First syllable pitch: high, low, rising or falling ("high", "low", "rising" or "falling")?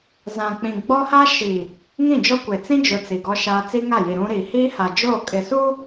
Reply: low